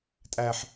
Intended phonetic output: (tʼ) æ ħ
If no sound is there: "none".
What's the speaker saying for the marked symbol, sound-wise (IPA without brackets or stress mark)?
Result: tʼ